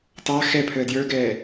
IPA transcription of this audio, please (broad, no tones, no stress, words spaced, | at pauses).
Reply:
tɑ xɛ pʰəːdjə˞ɡɛː